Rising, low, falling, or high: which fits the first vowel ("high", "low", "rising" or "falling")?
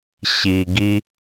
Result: low